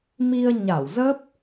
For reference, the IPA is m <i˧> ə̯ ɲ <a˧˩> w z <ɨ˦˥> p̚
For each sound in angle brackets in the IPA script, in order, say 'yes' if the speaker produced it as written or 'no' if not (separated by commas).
yes, yes, no